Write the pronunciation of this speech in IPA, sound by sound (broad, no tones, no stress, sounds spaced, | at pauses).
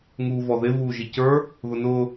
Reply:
ŋ uː v ɔ ð ɪ v uː ʒ i c ə˞ | ð ʊ n ʊː